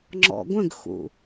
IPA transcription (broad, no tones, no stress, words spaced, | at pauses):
ŋ͡ǁɔ̰ɡʷə̃ɡxṵ